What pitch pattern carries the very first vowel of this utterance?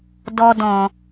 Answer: high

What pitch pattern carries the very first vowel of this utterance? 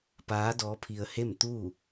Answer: rising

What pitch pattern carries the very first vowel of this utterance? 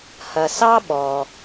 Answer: low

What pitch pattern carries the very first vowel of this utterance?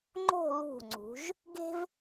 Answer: falling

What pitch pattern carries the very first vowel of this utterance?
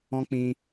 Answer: high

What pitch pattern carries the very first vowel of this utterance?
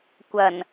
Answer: low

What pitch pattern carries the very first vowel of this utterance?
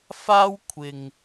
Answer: high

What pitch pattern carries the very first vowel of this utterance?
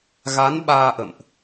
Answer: rising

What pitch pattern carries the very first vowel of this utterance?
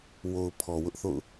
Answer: low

